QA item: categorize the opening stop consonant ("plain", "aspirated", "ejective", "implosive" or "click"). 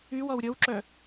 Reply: click